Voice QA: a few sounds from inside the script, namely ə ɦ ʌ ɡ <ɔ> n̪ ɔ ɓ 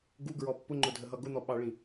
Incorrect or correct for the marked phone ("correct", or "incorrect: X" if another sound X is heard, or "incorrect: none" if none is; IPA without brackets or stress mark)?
incorrect: ʊ